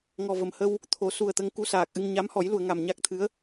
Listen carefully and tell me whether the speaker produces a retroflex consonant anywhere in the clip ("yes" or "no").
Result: no